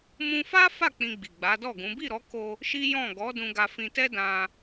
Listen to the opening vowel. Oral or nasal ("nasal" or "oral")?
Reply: nasal